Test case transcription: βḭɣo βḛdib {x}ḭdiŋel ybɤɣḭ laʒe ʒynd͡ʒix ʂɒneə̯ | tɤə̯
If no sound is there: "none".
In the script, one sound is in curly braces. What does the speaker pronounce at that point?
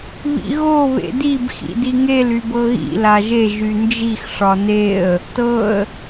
x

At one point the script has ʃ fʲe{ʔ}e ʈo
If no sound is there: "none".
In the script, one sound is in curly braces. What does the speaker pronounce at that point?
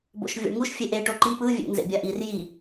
ʔ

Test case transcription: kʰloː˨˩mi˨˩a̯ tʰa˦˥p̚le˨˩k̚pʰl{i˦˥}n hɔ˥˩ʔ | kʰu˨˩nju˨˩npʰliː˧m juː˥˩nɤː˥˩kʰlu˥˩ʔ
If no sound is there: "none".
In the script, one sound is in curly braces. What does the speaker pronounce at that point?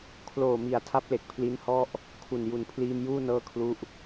i˦˥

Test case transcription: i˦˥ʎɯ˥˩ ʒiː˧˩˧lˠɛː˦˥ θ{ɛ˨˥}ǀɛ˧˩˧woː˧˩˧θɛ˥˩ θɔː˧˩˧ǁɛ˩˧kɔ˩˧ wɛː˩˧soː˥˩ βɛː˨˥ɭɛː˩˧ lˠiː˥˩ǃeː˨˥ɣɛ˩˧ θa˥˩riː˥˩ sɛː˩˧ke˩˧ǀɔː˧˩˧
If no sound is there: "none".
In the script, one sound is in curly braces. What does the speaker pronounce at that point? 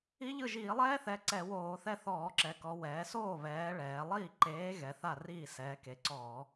ɛ˨˥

